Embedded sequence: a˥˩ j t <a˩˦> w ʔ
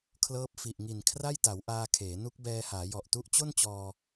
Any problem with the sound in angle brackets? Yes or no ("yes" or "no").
no